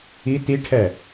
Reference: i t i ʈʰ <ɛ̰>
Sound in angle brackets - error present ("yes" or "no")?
yes